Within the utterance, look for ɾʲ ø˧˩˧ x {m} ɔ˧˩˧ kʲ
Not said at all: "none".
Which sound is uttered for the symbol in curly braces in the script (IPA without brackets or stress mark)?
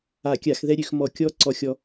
m